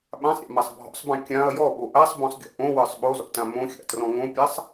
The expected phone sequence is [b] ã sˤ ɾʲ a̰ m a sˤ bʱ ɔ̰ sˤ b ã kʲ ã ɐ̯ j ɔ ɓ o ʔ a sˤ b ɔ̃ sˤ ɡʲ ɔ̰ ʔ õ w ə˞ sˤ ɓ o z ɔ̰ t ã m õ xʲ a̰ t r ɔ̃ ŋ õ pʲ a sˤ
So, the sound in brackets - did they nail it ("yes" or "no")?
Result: no